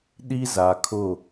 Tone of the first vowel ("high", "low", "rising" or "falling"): high